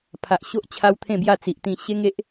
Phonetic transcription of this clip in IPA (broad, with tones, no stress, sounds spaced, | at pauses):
pʰ a˨ ʔ ɕ o˦ ʔ t͡ɕʰ a˦ w t̪ʰ ẽ˥˧ b j a˥˧ t͡s i˨ ʔ t̪ ĩ˧ ɕ e˦ ŋ e˦ ʔ